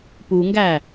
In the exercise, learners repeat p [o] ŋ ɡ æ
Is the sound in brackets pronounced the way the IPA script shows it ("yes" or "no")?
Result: no